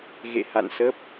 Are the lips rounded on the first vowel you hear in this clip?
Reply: no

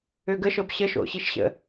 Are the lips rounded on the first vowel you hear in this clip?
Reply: yes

